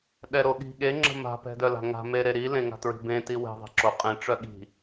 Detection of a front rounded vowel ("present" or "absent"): present